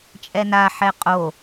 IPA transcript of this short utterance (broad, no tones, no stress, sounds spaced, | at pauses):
t͡ʃʼ ɛ n a ħ ɛ qʼ o